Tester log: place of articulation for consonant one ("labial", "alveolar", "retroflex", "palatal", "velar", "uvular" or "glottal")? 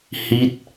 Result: glottal